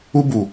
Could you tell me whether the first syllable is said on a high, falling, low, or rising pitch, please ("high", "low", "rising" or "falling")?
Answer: high